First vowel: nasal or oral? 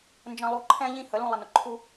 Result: nasal